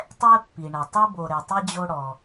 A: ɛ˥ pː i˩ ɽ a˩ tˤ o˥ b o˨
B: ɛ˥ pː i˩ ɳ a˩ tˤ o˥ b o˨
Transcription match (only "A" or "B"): B